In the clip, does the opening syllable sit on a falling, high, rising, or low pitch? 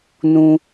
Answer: low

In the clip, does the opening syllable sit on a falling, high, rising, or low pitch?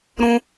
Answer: high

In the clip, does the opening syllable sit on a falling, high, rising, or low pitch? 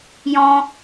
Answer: high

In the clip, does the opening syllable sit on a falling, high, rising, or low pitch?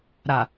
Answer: low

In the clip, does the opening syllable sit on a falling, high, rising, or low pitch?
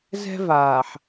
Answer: high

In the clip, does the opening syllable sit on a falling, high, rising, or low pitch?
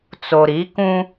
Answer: low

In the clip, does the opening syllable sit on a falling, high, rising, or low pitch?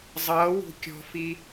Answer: rising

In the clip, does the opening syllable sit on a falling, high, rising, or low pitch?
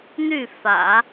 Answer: falling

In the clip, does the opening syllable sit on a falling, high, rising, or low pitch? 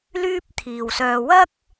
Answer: high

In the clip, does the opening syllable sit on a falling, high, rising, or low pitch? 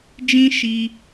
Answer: high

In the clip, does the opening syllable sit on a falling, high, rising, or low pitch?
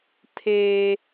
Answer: high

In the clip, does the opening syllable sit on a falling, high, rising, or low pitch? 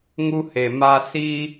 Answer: high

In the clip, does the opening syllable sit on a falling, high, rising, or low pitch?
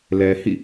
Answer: low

